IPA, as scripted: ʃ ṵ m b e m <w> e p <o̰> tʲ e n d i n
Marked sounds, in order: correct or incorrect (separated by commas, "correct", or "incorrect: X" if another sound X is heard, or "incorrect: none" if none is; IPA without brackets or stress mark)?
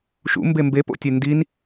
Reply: incorrect: b, correct